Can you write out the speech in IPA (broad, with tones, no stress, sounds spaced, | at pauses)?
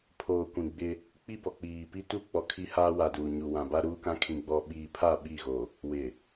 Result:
pʰ oː˨ kʷ ĩ˨ ɡ͡b ɪ˦ | k͡p i˦ b ɔ˨ k͡p iː˨ p i˦ t u˦ k͡p ɔ˨ kʰ i˦ h aː˦ w a˨ d uː˨ ɲ u˨ w ã˨ b a˦ ɾ uː˦ k ã˦ kʰ ĩ˨ ɡ͡b ɔ˨ ɓ iː˨ pʰ a˦˨ ɓ i˦˨ ɣ o˨ | w ɪ˨